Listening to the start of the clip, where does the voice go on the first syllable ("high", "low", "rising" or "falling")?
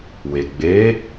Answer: low